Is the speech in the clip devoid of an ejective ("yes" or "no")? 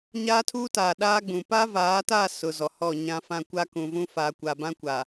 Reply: yes